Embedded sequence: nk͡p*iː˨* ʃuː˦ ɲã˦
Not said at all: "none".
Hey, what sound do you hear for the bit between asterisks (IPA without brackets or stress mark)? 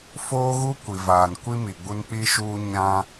iː˦